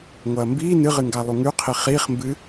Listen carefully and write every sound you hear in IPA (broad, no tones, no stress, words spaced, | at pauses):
ŋʷɐːmbiː nɨʁɨŋɡa lˠuŋʉqʰi χiːχmbɨ